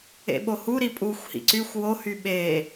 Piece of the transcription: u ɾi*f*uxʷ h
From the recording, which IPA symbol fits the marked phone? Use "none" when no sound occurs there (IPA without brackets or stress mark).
pʼ